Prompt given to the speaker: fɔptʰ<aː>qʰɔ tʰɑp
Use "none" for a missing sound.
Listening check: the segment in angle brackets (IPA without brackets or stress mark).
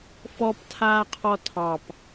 aː